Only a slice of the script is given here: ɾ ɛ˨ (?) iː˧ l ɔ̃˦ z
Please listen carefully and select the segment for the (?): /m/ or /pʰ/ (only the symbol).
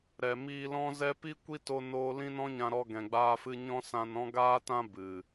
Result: m